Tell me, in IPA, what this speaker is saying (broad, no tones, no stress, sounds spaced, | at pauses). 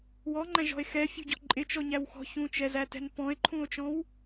w ɔ ŋ͡ǃ æ̃ ʒ ɔ̤ e̯ x ɛ fʲ ṳ ɟ ɔ̤ ǃʼ ɪ t͡ʃ ɔ ɲ æ w x ɔ̤ ç ũ t͡ʃ ɛ z æ t ɛ̤ n p ɔ̃ e̯ ǃʰ ũ o̯ t͡ʃ ɔ̃ w